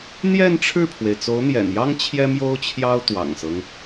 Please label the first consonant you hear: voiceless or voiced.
voiced